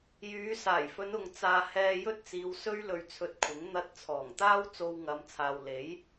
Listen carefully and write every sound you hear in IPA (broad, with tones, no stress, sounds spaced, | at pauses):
j yː˨˧ s aː˨˩ j f ɵ˨˧ n ʊ˨ ŋ t͡s aː˧ h ɛː˧ j ɵ˥ t̚ t͡s iː˨˧ w s ɵ˥ ɥ l ɵ˧ ɥ t͡sʰ ɵ˧ t̚ kʷʰ ɪ˨˥ ŋ n̪ ɐ˧ t̚ t͡sʰ ɔː˨˩ ŋ t̪ aː˥ w t͡s o˧ w ŋ ɐ˨˧ m t͡sʰ aː˨ w l e˨˥ j